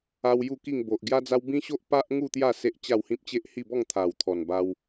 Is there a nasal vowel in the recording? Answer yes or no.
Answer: yes